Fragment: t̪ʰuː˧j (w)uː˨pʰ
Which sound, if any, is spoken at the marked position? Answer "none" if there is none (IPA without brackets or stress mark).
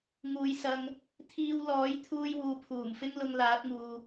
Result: w